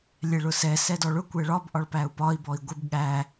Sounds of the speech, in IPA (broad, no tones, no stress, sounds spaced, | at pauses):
lʲ ɛ ɭ ʊ s ɛ s ɛ d ɔ ɭ ʊ kʷ ɛ ɭ ɒ b ʔ ɒ ɭ p æ u̯ p ɒ i̯ b ɔ i̯ ɡʷ ɪ b ɠ æ